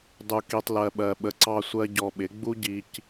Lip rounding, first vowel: rounded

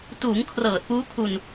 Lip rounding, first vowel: rounded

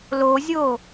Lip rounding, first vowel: rounded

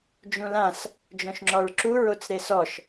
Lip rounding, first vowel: rounded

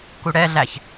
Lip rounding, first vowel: rounded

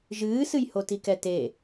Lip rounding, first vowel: unrounded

